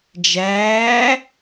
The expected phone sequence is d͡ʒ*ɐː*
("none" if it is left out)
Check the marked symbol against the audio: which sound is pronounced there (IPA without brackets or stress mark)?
æː